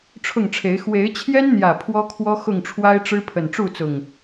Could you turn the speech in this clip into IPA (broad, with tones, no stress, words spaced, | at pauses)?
ʈ͡ʂʰʊ˥˨ŋʈ͡ʂʰe˨˦ɪ̯ xwe˨˦ɪ̯t͡ɕʰjɛ˦nn̪jä˨˩ pʰwɔ˦kʰwɔ˦ xʊ˥˨ŋʈ͡ʂʰwa˦ɪ̯ʈ͡ʂɻ̩˦ pʰə˨˩nʈ͡ʂu˥˨t͡sʊ˨˩ŋ